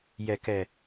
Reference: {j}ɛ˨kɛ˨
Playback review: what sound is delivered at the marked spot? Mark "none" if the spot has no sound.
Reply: j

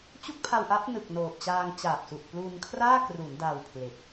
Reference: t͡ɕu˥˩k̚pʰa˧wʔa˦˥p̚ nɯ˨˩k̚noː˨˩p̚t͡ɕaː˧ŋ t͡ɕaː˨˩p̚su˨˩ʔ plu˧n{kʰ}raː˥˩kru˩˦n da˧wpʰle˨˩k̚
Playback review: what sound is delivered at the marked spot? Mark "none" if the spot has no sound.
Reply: kʰ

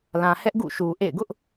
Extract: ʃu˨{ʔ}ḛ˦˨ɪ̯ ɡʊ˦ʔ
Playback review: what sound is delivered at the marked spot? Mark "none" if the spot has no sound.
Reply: ʔ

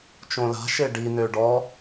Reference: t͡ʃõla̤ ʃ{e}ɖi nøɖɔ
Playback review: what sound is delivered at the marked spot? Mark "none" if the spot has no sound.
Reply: e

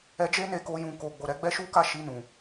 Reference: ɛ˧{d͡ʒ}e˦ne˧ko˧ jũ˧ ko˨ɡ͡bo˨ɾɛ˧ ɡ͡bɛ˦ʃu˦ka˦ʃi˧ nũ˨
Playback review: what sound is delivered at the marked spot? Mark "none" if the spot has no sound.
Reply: d͡ʒ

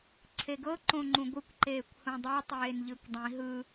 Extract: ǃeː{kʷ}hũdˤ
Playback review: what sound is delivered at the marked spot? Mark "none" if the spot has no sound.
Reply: kʷ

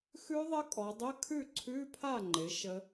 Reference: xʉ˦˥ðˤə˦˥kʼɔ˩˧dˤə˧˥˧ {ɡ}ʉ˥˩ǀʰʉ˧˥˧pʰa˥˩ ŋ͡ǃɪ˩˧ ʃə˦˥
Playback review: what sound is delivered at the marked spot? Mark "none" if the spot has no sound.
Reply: kʰ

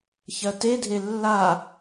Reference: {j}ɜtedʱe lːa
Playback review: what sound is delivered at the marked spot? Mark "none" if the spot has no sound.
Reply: ç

